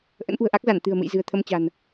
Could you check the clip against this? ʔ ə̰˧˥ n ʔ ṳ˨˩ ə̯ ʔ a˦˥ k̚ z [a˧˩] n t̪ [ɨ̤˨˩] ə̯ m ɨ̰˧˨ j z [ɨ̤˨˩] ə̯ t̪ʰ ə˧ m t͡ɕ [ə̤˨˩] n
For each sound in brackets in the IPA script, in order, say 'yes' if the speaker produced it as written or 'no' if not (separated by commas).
yes, yes, yes, no